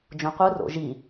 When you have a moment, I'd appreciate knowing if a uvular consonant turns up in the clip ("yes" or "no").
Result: yes